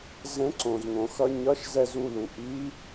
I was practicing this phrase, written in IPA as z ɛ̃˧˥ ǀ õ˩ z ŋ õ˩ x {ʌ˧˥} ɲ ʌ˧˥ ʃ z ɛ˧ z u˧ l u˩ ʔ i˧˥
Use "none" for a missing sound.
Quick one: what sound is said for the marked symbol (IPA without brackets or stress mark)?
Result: ʌ˧